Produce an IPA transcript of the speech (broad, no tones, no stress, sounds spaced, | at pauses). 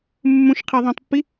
mː ũ ʃ qʰ e ðˤ ũ tˤ pː i